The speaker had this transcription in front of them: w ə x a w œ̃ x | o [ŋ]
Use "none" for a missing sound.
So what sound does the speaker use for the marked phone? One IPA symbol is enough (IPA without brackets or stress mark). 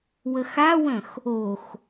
x